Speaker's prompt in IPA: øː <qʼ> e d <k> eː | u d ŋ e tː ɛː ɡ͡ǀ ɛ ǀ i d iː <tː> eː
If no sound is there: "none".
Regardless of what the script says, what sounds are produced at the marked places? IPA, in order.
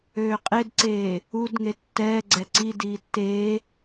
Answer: qʼ, ǀ, tː

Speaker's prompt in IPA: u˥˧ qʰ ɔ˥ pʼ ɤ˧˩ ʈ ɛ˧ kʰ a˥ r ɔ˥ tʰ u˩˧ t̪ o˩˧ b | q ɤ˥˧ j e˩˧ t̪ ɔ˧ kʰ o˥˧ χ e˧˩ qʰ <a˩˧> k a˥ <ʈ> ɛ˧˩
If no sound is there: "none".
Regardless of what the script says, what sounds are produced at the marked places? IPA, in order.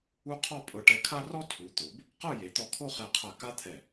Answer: a˧˩, t̪ʰ

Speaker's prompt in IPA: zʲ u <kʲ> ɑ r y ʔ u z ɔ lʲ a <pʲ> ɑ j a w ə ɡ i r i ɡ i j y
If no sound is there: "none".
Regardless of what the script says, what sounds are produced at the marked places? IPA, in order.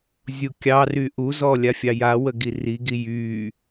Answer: kʲ, fʲ

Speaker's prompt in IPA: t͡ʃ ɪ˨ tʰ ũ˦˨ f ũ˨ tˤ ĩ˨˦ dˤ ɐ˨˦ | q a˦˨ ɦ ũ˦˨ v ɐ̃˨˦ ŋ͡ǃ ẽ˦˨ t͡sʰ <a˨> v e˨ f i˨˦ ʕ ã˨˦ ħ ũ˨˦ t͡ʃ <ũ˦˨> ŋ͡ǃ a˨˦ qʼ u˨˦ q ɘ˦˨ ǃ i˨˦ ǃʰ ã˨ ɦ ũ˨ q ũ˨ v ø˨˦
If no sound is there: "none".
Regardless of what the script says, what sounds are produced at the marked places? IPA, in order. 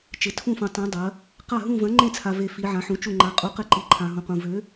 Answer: a˨, u˦˨

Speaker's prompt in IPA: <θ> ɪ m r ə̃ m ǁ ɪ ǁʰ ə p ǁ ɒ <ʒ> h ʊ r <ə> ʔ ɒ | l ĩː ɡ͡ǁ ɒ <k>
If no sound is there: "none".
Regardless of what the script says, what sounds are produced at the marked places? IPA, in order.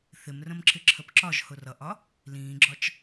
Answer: θ, ʒ, ʌ, t͡ʃ

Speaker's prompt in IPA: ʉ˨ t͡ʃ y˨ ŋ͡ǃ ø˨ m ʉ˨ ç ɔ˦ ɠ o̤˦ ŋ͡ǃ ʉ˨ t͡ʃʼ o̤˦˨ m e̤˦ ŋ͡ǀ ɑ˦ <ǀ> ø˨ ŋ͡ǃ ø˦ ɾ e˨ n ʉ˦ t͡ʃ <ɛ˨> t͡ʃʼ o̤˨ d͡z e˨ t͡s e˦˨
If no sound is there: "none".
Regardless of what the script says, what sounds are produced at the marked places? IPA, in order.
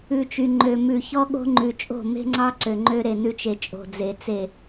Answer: ǀ, e˨

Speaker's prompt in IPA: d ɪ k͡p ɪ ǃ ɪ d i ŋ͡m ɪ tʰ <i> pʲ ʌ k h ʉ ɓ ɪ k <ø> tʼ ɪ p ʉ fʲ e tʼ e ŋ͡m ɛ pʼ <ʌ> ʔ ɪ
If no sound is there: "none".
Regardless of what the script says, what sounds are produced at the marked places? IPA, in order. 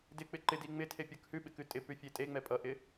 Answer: e, ʉ, ʌ

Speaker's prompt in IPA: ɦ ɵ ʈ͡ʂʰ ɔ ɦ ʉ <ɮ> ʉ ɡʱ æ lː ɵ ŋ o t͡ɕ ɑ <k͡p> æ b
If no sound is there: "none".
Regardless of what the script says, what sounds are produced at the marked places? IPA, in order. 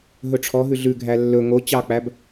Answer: ɮ, k͡p

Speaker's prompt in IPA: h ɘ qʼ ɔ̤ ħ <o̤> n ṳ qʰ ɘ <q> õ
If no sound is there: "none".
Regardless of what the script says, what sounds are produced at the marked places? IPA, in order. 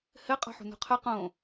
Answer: ṳ, q

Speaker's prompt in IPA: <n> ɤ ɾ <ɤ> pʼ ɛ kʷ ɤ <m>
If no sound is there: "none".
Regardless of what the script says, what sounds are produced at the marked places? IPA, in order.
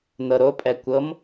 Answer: n, o, m

